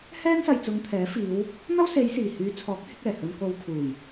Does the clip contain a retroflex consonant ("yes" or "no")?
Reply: no